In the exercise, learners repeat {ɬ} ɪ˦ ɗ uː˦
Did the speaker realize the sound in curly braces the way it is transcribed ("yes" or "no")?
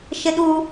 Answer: no